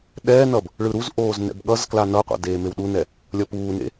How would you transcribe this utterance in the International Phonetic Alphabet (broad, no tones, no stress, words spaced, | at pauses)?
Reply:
ɗɛːnʌb | ɭɯɾuzʔoːz nɛ̰bɠʌzkla nʌqʷa̰ deːmewɗunɛ | lʲʌpuːnḛ